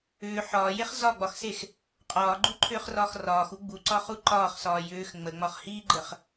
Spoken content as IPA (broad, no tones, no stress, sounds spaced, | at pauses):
ʏː ħ ɒː j e χ z ɒ ɡ͡b ɒ x s e x | qʼ ɒː ɡ͡ǃ u ǃʰ ʏː χ r ɒː x r ɒː x u ɡ͡b u ǀ ɒ χ u ǃ ɒː χ s ɒː j ʏː x ŋ͡m ə ŋ͡m ɒ χ h iː ɡ͡ǃ ə χ